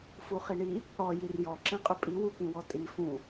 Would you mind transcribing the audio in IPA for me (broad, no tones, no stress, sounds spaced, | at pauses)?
f u χ i ɳ i | ɽ ɔ j i r j ɔ ǁ ĩ qʼ ʏ pʼ i w u k ĩ w ɔ tʼ i f ũ